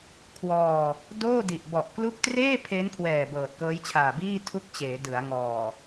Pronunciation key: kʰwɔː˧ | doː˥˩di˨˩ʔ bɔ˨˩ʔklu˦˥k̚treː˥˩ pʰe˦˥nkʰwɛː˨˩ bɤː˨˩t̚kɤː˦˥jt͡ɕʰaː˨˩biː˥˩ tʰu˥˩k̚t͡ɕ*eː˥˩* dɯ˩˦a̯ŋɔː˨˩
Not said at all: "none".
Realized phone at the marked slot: eː˩˦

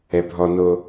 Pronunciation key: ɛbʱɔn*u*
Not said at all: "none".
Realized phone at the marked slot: o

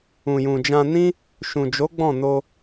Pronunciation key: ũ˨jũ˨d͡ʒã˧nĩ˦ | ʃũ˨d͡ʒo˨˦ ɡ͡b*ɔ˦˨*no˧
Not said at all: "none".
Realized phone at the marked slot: ɔ̃˦˨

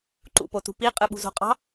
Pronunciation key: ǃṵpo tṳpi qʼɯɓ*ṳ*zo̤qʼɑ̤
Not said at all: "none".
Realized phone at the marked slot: ṳ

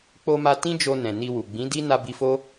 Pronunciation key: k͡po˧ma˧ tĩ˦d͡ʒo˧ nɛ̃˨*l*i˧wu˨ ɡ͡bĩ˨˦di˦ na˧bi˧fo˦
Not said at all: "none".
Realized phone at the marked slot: n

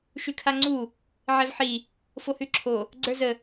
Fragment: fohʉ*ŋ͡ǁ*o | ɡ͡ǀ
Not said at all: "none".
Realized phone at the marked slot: ǁʰ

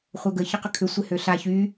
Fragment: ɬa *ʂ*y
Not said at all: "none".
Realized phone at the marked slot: ç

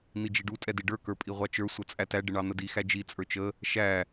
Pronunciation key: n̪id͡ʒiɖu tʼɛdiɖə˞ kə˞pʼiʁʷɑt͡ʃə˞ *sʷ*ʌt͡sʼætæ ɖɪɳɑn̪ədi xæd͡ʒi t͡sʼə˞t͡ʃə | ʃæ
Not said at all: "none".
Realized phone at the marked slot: sʷ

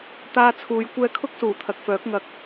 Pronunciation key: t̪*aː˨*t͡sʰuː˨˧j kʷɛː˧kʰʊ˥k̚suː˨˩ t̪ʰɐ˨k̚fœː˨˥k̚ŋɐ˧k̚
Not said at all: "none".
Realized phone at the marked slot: aː˧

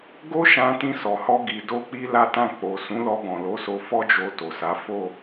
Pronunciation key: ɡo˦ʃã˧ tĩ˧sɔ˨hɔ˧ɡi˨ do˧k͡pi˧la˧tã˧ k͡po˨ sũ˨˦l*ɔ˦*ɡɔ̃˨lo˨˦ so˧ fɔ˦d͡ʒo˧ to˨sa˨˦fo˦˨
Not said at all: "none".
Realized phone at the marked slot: ɔ˧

